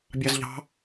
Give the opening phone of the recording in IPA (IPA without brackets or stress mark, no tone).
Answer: bʲ